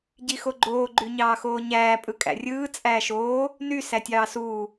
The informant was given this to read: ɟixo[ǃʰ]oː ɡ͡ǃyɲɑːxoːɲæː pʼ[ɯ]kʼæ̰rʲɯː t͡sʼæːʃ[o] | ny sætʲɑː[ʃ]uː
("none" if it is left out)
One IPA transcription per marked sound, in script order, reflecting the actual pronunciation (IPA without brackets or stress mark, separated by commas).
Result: ɡ͡ǃ, ɯ, oː, s